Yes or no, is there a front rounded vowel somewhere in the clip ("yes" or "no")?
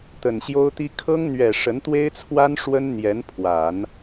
no